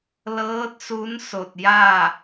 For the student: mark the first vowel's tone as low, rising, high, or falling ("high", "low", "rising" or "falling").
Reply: rising